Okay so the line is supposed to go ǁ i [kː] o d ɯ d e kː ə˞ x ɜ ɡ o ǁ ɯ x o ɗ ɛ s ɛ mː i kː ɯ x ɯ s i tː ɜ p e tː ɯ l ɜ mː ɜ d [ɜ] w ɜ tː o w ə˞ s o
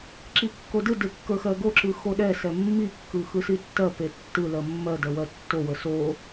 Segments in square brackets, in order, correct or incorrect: correct, correct

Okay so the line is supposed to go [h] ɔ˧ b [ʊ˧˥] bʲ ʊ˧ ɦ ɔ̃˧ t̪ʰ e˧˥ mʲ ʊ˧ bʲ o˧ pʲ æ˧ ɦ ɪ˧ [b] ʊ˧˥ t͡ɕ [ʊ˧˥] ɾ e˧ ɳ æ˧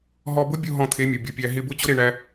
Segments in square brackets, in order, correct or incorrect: incorrect, correct, correct, correct

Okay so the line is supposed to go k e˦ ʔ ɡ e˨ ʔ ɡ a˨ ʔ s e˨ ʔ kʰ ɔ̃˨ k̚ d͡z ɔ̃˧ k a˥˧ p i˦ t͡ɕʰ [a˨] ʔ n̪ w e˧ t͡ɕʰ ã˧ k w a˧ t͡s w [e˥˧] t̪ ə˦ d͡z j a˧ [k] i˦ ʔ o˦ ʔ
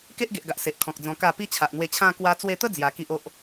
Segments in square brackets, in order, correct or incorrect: correct, incorrect, correct

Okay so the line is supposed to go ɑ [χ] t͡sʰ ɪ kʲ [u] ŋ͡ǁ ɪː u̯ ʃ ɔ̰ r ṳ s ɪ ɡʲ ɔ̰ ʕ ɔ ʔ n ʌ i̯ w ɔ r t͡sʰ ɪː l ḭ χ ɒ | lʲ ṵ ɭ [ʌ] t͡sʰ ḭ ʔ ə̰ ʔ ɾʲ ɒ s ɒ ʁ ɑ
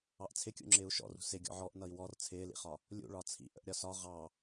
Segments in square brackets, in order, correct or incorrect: incorrect, incorrect, incorrect

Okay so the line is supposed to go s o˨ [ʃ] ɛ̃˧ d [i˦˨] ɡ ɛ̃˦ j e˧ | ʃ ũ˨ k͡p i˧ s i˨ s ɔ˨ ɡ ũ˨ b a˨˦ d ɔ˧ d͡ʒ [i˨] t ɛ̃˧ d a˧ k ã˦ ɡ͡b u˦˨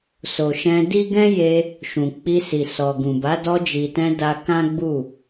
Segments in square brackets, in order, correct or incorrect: correct, incorrect, correct

